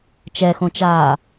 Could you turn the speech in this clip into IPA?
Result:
t͡ʃ ɛ x õ t͡ʃ aː

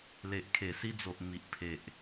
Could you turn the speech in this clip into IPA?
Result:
l e˨ ʔ kʰ e˨˩ s i˧ d͡z o˨ ʔ m i˨ ʔ pʰ e˨ ʔ

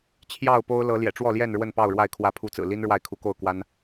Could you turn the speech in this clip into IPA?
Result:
t͡ɕʰ j ɑ˥˨ ʊ̯ p o˦ ʊ̯ l ɤ˨˦ l j ɛ̰˨˩ ʈ͡ʂ w ɔ˥˨ l j ɛ˥˨ n ɻ w ə˥˨ n p ɑ˥˨ ʊ̯ ɻ w a˥˨ ɪ̯ kʰ w ä˨˦ pʰ u˨˦ t͡s ɹ̩˨˩ l i˦ n ɻ w a˥˨ ɪ̯ kʰ u˨˦ k o˥˨ ʊ̯ k w a˦ n

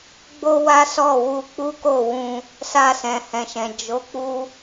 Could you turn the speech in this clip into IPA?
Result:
ɡ͡b o˦ w a˦ s ɔ˦˨ w u˧ k͡p u˦ k o˦˨ w ũ˧ | s a˧ s ɛ̃˨ h ɛ̃˨ ʃ ɛ̃˨ d͡ʒ o˨˦ k͡p u˧

